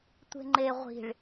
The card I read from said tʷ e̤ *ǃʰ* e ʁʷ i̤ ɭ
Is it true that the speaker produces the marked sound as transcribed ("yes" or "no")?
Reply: no